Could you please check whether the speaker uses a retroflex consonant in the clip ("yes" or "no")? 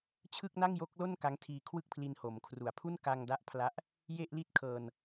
no